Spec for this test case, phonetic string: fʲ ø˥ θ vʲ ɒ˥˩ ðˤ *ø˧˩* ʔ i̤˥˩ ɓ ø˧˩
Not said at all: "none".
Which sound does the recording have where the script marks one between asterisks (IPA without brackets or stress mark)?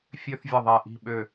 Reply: ɛ˧˩